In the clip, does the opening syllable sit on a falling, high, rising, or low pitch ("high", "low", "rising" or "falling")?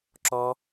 high